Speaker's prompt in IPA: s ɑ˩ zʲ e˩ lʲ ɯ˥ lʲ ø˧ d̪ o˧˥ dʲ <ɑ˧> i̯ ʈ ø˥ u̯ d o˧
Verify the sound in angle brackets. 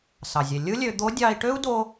correct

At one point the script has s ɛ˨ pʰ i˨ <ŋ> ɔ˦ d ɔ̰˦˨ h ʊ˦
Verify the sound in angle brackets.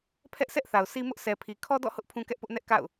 incorrect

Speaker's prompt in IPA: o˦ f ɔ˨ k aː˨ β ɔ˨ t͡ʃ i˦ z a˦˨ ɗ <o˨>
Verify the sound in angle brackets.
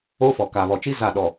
incorrect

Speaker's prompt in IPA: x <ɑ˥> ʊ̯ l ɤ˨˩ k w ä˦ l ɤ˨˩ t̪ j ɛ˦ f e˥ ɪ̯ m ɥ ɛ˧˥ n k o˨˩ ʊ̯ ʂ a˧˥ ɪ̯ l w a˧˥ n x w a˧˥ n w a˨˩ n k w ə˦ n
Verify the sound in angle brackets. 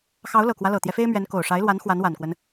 incorrect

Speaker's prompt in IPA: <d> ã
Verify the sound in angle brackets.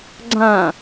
incorrect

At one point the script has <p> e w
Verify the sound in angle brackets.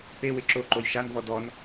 correct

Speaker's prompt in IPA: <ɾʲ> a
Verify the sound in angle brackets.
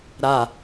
incorrect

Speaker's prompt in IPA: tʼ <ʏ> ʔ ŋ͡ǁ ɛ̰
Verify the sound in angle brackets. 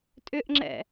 correct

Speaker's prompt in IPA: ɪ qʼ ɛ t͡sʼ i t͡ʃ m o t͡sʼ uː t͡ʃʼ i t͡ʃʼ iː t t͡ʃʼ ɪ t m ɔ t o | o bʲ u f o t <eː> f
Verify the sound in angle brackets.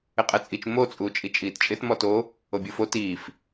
incorrect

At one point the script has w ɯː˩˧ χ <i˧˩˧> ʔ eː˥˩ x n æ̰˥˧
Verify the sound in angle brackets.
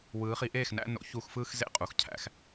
incorrect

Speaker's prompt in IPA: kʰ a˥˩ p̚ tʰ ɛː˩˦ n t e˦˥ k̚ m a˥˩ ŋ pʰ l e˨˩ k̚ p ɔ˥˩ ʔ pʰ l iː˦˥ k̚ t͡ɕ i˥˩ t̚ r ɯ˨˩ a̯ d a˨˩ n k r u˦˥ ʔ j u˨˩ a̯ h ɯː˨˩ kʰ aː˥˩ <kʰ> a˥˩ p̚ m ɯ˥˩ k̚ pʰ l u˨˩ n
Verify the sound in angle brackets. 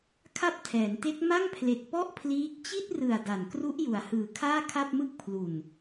correct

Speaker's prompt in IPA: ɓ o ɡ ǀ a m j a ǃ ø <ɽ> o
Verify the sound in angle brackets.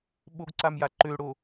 correct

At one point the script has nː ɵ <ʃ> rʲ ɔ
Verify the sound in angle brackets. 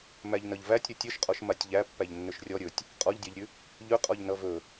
correct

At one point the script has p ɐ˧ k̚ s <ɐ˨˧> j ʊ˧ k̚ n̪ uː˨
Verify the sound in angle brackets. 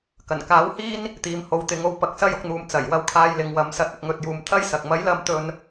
incorrect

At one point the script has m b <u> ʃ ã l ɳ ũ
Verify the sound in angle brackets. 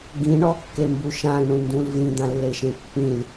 correct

